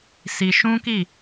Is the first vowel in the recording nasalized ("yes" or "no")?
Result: no